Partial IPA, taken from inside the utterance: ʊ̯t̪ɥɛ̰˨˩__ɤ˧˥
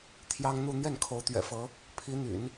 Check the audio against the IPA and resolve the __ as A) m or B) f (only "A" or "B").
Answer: B